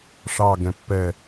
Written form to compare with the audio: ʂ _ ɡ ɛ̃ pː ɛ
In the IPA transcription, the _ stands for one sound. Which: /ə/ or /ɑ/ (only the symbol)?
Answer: ɑ